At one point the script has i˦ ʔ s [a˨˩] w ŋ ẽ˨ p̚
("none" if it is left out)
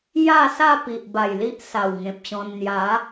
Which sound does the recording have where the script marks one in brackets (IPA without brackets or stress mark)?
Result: a˨˩